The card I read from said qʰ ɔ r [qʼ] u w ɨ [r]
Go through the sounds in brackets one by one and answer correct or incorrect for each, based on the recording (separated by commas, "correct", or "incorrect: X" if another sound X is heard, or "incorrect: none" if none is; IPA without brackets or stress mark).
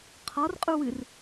correct, correct